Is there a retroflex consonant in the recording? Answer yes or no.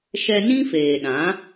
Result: no